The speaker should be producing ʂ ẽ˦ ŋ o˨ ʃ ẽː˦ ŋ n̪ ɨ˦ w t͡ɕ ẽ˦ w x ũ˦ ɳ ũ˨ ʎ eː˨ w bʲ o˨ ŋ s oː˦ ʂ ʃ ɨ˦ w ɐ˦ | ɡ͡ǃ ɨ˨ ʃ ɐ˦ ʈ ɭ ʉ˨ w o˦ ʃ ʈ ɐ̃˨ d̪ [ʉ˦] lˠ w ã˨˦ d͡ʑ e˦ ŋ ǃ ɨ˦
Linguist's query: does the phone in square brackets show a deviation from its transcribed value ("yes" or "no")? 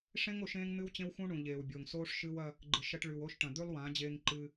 no